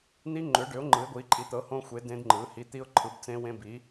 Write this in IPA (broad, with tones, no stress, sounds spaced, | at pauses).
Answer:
n̪ i˦˥ ŋ͡ǃ ʏ˨˥ ɖ ʏ˨˥ ʊ̯ ŋ͡ǃ ɯ˨˥ ɪ̯ ɡʷ i˨˥ ǃʼ i˨˥ t̪ ɤ˨˥ h õ˦˥ xʷ e˨˥ d ẽ˦˥ d ŋ͡ǃ ɯ˨˥ h i˨˥ t̪ i˦˥ ʊ̯ ǃʰ ɯ˨˥ b t͡s ẽ˦˥ w ẽ˦˥ b i˨˥